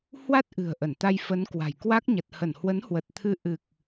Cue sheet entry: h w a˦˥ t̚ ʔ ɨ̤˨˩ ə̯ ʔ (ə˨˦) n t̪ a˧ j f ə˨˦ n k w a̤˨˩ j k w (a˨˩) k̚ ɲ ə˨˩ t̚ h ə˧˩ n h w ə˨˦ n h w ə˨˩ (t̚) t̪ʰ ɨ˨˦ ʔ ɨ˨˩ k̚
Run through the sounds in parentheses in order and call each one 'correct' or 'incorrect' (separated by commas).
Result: incorrect, incorrect, correct